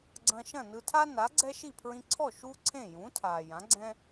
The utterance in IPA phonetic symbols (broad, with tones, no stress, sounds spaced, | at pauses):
ɡ͡ǀ ɐ̃˧ ʃ ɐ̃˥˩ n ɯ˧ tʰ a˥ n a˩˥ ɡ͡ǀ ɛ˥ ʃ i˥˩ pʰ ɹ ĩ˧ ǀʰ ɔ˥˩ ʃ u˥ ǀʰ ẽ˥˩ j ũ˩˥ tʰ a˩ j ã˩˥ ɡ͡ǀ ɛ̃˥